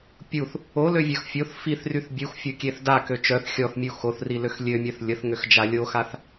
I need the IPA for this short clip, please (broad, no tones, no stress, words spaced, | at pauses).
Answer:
pʲuθ | oløvʲœx fʲoθ fiθryθ bʲuxfʲokʲeθ dakø t͡ʃœθ xʲɔθmʲu xoθriløx lʲømʲœθ lʲəθŋøxd͡ʒa lʲoxaθ